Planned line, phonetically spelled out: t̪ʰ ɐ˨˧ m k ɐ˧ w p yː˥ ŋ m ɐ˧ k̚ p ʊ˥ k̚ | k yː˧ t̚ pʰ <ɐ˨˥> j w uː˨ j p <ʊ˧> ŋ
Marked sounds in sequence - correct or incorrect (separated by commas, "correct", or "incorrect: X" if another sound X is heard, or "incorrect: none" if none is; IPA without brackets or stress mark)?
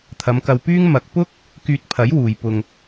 correct, correct